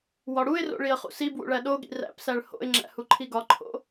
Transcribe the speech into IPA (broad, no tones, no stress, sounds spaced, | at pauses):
w ɒ ɽ u ɪ̯ r o̰ ɭ i ə̯ χ ṵ s i b w ṵ ɭ æ ɗ o ɠ ḭ r æ̰ p s æ ɭ h o̰ ɪ̯ ŋ͡ǁ æ̰ h u ǃʰ i ɡ ɒ ǃʰ o̰